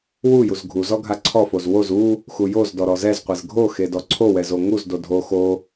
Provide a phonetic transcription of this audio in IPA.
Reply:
w u j u z ɡʱ u z ɔ ɡʱ a ǀʰ ɔ f o z w o z u | x u j o z d ɔ ɾ ɔ z ɛ z qʷ e z ɡʱ o x e d ɔ ǀʰ o w ɛ z o ŋ u z d o dʱ o x o

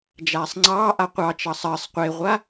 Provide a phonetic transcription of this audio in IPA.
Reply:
d͡ʒ aː sˤ ŋ͡ǀ ɑː ʔ a qʷ ɑ t͡ʃ ɑ sˤ əː sˤ qʷ e ʁʷ a

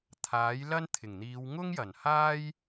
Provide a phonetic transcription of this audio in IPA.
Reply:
t̪ʰ aː˨˥ j l ɐ˥ n t̪ʰ ɪ˨˩ ŋ n̪ iː˨˧ w ŋ ʊ˥ ŋ j ɐ˨˩ n h aː˥ j

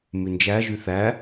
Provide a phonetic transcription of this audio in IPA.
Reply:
m ʉ n d͡ʒ æ ʒ y θ æ

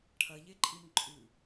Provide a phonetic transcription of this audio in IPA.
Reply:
ʈʰ ɐ ʎ e ǃʼ i m ǃʼ ʉ

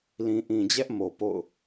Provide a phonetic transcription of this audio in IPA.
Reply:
l ĩ˨ ʔ ĩ˨ d͡ʑ ɛ˦ ʔ m o˨ p o̰˦˨ ʊ̯

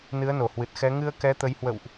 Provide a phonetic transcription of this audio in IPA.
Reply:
n ɨ˨˦ ə̯ n o˧˩ h w ɨ˨˩ t̚ x ɛ˨˦ ŋ ɨ˧ ə̯ k ɛ˨˦ t̪ ə˨˦ j h w ə̰˧˨ w ʔ

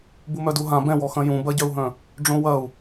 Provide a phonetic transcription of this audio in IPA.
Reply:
b u m œ d u ɦ ã b ɛ̃ w ɔ x ɐ̃ j ũ b ɐ ɟ œ u̯ ɦ œ̃ | ɖ͡ʐ õ w ɐ u̯

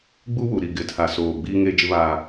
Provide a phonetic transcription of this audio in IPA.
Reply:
ɡ͡b u˦ w u˨ ɾ i˨ ɡ ɪ˨ tʰ a˨ s oː˨ ɡ͡b iː˦ ŋ eː˦ d͡ʒ ɪ˦ β aː˦

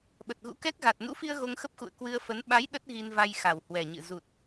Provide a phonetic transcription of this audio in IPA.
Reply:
ɓ ə˨˩ t̚ ɣ ṵ˧˥ k ɛ˦˥ k̚ ɣ a˨˩ t̚ n ṵ˧˥ f i˧ ə̯ ɣ o˧ ŋ x ə˦˥ p̚ x ṵ˧˨ ə̯ k w ɨ˧ ə̯ f ə˨˦ n ɓ a˨˦ j ɗ ə˦˥ t̚ ɣ i˧ n v a˧ j x a˨˩ w h w ɛ˨˩ ɲ ɨ̰˧˨ z u˨˩ t̚

